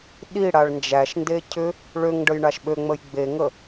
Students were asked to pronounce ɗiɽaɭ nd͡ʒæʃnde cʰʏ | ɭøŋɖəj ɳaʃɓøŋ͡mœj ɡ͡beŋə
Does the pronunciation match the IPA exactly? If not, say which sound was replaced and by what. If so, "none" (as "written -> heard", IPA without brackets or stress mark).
œ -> ə